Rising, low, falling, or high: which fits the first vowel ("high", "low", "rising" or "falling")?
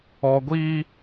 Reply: high